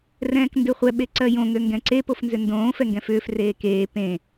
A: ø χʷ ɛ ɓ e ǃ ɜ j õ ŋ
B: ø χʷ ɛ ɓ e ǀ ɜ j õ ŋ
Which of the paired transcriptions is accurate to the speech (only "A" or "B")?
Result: B